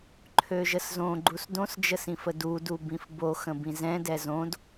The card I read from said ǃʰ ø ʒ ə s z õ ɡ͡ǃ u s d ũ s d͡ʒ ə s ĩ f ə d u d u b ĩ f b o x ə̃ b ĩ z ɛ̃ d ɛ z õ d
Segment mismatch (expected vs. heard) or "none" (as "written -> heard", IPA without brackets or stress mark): ũ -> õ